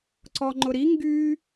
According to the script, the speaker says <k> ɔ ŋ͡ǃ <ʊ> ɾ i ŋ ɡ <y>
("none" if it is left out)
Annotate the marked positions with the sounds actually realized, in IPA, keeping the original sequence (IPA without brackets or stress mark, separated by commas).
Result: ǀ, ʊ, y